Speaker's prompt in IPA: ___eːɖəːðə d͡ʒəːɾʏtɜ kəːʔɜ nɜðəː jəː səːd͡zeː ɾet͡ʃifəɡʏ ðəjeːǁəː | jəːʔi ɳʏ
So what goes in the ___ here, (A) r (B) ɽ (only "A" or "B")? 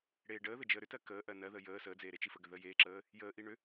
B